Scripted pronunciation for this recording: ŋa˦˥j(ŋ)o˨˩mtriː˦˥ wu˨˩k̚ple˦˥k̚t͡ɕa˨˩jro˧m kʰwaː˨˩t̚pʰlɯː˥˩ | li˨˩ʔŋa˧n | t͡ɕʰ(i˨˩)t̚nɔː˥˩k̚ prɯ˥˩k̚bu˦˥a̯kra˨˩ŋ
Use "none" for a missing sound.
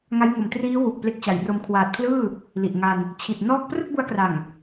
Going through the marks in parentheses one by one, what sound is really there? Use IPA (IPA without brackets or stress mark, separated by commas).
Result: ŋ, i˨˩